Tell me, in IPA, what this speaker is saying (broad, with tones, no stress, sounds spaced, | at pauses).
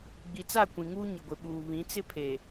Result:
ɡ͡b i˨ t͡s a˦˨ kʷ ĩ˨ ŋ uː˦ ɲ ɪ˨ ɡʷ ɪ˨ ɓ uː˨ β ĩ˨˦ t͡s ɪ˦ pʰ e˨